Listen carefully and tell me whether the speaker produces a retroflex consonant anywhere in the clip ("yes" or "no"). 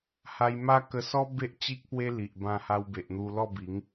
no